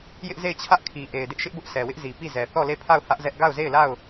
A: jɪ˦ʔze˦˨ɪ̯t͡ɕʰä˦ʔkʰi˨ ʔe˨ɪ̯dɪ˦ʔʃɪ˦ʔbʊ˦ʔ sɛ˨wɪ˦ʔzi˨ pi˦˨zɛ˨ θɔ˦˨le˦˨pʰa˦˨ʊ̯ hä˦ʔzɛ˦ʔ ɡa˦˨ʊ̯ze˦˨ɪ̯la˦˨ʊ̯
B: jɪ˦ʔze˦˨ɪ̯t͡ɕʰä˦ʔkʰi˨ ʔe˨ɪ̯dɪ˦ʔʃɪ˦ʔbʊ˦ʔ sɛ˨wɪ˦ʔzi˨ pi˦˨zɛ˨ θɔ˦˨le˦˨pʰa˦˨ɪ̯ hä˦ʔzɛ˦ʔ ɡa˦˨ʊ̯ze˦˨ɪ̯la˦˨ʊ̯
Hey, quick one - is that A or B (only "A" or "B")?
A